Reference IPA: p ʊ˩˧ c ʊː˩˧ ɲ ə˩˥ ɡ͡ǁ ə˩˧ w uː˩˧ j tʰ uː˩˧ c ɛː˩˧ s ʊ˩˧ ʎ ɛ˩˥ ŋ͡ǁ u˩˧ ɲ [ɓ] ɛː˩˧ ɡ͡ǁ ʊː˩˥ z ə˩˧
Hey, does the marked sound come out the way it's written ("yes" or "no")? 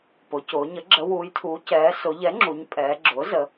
no